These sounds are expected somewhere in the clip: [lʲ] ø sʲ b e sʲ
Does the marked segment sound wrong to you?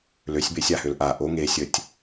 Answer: yes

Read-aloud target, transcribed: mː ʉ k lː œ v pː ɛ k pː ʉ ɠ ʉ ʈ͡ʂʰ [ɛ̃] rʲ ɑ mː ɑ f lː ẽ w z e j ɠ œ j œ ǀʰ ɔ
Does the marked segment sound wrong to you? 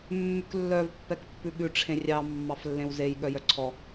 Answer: yes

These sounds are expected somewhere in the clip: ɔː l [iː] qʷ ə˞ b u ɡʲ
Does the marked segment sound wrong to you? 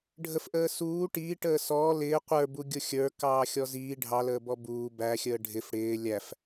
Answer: yes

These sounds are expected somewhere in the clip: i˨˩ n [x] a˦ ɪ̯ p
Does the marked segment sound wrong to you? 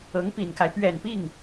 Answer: yes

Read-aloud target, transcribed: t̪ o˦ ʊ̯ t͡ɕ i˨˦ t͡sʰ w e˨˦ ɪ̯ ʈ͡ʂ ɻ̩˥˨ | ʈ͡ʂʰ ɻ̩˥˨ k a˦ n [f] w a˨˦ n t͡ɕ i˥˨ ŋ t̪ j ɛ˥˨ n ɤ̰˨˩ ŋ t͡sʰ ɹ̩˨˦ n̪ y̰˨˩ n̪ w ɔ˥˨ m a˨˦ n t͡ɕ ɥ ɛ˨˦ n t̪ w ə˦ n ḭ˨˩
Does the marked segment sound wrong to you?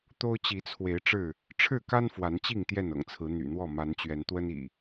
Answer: no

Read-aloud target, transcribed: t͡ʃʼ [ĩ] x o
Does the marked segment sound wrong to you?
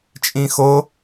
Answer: no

